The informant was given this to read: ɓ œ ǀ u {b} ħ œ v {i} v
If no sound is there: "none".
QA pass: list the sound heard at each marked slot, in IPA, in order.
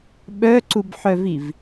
b, i

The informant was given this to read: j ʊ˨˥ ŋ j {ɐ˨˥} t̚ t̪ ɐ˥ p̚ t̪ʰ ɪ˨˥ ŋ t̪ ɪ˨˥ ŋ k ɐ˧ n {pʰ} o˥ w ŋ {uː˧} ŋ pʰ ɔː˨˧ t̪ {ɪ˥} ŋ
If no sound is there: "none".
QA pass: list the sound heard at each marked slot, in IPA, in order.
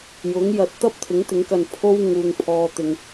ɐ˨˥, pʰ, uː˨, ɪ˨

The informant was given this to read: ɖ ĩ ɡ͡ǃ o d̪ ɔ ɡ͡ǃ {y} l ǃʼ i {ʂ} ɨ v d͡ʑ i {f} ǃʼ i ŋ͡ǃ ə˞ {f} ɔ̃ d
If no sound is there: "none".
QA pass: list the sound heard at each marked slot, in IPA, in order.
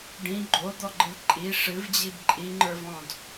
ɨ, ʂ, b, v

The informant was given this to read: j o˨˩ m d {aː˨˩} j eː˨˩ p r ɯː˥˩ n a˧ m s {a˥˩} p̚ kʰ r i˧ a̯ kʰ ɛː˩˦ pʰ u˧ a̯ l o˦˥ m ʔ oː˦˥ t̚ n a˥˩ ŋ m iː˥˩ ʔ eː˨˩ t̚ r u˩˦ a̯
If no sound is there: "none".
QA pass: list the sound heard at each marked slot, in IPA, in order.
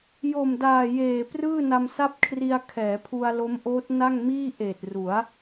aː˨˩, a˥˩

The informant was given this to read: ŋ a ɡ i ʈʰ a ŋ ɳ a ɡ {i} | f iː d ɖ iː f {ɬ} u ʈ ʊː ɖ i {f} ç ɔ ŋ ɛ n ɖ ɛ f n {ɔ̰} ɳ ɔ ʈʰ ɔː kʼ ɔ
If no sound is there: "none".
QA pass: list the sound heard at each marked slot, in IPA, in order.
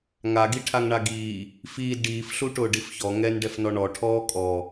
iː, ɬ, f, ɔ

